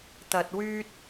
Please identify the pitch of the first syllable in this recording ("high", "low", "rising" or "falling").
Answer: low